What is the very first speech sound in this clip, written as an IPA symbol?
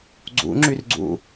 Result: ɡ͡ǀ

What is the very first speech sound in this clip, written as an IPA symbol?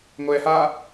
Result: ŋʷ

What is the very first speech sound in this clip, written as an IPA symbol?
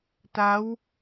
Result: t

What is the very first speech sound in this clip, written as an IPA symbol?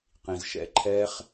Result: q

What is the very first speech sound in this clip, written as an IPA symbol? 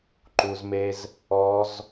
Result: ǃ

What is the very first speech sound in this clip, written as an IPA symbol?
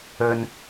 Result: ɵ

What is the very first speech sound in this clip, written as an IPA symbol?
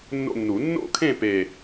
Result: nː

